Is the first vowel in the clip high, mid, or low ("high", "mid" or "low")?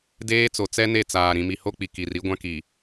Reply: mid